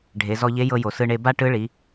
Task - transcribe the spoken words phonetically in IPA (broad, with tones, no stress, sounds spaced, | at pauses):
ɖʱ e˩˧ z ɔ˧ ʎ e˧˥ j ɤ˧ j o˩ s ɯ˧ ɳ e˧ b a˥ ʈ ɯ˧˥ ɭ i˩˧